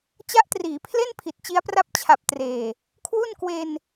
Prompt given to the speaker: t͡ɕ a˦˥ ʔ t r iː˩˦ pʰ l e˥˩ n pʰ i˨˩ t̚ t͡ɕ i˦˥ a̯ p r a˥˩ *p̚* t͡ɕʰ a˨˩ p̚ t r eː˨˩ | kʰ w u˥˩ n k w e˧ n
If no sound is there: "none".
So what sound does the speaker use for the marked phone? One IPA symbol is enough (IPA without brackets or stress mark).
p̚